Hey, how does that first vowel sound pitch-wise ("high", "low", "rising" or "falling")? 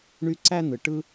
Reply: high